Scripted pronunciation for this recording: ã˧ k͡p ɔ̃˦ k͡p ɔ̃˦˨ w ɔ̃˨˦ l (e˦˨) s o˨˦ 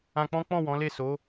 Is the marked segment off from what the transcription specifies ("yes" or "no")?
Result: no